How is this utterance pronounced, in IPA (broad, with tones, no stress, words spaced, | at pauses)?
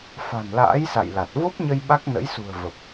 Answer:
fa̤˨˩nla̰ː˧˥jsa̰˧˨j la˨˩t̚ vo˦˥p̚ɲə˧j ɓa˦˥k̚nə̰˧˥jsṳ˨˩ə̯ və˨˩p̚